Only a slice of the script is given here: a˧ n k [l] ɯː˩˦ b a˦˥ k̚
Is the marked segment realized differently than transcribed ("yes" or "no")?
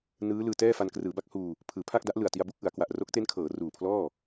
yes